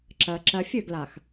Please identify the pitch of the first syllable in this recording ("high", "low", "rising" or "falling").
low